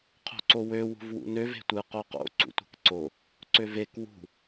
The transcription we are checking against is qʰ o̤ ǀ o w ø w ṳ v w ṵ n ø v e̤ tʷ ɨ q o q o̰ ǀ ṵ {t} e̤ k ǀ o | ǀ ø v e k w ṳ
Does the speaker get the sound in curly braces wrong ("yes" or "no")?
yes